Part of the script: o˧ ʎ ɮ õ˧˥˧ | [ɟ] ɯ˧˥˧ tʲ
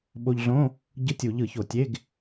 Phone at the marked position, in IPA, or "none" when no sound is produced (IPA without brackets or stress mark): ɟ